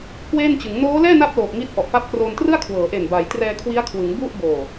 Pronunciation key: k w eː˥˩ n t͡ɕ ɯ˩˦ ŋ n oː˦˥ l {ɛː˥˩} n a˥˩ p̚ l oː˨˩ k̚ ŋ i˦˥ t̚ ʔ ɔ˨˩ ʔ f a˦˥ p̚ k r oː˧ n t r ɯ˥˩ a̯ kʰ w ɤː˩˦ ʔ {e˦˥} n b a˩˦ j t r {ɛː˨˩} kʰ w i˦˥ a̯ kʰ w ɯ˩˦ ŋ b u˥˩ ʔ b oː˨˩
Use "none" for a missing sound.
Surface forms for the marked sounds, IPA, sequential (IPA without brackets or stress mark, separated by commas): ɛː˥˩, e˨˩, ɛː˧